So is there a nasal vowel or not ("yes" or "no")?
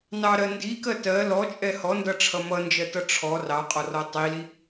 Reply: no